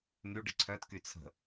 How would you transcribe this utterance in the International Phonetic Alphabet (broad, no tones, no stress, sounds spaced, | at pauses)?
n̪ y ɖ ɪ ǀʰ œ t k y t͡sʰ ə̤